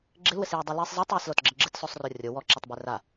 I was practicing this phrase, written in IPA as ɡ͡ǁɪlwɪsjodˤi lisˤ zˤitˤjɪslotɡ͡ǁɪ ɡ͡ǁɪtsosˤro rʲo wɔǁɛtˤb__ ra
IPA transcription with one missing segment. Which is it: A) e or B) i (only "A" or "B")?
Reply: A